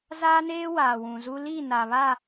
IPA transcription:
z aː˦ n eː˦ w aː˨ w ũ˨ z u˦ l iː˦˨ n a˨ β a˦˨

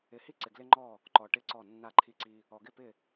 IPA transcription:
ɪ˨ h i˦ ǀ ɪ˨ ɡ l ɪ˦ ŋ͡ǃ ɔ˦˨ | ǃ ɔ˨ ʈ ɪ˦˨ ǀ ɔ˦˨ nː a˦˨ ǃʰ i˦ ǀ i˦ | ɔ˨ ɡ ɪ˦˨ p ɪ˦˨

